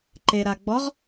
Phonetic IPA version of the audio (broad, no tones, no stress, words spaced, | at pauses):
ǃeɾaɡ͡bɔʁ